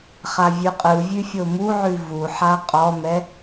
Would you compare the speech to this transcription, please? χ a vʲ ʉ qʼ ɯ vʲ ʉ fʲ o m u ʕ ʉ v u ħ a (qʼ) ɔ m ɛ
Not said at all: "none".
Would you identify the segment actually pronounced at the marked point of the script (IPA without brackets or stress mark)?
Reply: qʼ